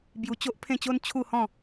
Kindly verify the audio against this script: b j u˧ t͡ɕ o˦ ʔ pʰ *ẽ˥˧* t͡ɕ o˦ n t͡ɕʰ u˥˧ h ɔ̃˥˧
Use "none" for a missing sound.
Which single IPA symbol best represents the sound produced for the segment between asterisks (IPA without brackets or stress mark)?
ẽ˥˧